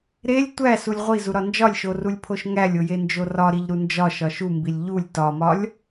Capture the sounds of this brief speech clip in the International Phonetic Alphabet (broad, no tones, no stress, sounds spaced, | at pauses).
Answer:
ɾ e lʲ tʷ æ s u lʲ ʁʷ i z u ɾ ɒ n d͡ʒ ɒ lʲ ʃ o r u lʲ pʰ o ʃ ŋ æ lʲ o j e n d͡ʒ o r ɒ ɾ i ʎ ɾ u n d͡ʒ ɒ ʃ ɒ ʃ u m b i lʲ ʎ u lʲ t ɒ m ɒ lʲ